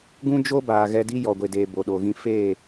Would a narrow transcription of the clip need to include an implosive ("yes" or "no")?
yes